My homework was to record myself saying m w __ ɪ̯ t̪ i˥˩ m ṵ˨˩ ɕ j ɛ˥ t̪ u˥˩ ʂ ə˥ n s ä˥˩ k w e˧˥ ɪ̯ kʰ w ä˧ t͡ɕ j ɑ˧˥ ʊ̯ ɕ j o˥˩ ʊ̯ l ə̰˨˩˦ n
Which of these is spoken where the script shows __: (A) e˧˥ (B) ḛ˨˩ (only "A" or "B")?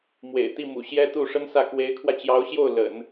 B